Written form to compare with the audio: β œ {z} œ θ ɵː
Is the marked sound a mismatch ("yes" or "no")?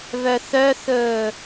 yes